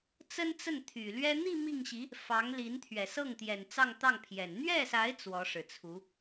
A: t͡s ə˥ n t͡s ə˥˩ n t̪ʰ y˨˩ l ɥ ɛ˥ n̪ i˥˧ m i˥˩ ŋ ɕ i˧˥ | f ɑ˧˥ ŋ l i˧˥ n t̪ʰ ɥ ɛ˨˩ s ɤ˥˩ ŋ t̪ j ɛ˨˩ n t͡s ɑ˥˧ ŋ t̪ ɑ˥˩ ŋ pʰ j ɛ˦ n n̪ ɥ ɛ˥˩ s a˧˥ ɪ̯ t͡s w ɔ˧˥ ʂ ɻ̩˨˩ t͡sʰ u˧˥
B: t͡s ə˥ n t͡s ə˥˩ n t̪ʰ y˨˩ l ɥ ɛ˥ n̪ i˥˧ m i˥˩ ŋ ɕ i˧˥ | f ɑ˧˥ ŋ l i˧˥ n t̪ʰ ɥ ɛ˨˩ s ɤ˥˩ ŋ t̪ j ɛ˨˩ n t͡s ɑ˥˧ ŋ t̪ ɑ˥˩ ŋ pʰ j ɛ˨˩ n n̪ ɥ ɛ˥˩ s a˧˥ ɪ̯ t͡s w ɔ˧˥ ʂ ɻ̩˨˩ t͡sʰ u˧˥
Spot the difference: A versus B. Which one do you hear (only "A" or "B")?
B